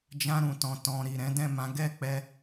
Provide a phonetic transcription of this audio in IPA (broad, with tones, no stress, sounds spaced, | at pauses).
d͡ʒ ã˧ ɾ ũ˨ t ɔ̃˨ t ɔ̃˨ ɾ i˨ ɾ ɛ̃˨˦ d ɛ̃˦˨ m ã˨˦ ɡ ɛ˦˨ k͡p ɛ˧